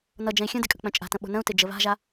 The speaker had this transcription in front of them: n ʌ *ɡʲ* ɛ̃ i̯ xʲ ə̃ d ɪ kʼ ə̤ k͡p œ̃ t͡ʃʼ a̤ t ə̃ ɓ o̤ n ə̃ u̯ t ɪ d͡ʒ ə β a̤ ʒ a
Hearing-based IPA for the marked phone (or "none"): d͡ʒ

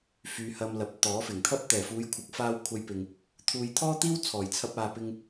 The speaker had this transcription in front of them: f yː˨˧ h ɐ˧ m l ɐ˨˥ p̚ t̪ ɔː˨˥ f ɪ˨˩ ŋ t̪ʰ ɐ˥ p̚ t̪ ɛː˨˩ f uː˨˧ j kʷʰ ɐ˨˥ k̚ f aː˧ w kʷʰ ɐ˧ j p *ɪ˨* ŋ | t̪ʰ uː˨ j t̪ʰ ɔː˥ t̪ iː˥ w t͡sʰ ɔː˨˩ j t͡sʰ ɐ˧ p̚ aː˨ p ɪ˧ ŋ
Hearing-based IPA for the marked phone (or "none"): ɪ˨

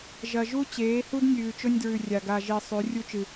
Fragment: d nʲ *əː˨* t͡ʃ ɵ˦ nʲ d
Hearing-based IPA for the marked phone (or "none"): ʉː˨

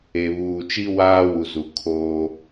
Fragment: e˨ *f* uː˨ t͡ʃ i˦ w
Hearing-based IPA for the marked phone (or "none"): β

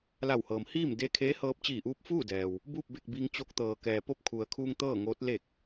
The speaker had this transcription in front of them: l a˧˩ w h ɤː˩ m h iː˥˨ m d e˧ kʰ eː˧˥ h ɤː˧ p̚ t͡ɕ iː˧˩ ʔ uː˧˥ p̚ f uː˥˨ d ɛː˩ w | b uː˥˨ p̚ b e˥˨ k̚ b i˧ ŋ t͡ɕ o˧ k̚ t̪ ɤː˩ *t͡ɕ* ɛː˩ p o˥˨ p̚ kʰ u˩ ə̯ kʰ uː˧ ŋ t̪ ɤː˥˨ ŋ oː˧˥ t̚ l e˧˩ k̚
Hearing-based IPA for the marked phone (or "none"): k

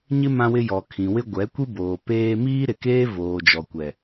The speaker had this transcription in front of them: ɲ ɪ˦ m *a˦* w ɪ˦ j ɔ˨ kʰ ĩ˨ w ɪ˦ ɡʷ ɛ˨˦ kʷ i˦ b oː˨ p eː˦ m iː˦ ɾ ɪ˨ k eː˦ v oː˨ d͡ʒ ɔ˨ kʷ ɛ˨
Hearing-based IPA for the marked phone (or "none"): ã˦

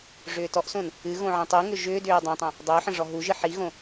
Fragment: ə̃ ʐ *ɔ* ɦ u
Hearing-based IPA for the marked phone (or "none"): ɔ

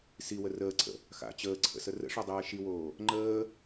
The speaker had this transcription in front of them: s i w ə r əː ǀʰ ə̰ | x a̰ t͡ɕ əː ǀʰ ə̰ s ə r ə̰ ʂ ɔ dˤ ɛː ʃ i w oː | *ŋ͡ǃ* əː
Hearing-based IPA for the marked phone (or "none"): ŋ͡ǃ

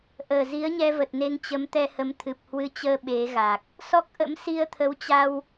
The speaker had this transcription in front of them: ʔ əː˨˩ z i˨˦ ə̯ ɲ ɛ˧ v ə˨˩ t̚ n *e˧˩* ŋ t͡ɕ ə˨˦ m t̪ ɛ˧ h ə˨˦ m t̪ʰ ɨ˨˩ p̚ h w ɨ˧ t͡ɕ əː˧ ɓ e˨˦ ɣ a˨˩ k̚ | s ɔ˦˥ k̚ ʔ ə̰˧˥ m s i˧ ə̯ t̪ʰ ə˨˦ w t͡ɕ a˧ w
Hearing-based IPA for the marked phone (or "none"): e˧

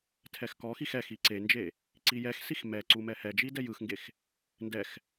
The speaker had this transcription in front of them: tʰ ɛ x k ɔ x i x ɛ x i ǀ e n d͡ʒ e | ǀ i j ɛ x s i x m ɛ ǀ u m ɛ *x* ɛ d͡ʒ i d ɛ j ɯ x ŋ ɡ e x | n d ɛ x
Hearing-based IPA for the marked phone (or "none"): h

